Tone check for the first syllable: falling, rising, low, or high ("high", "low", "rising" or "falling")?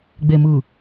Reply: low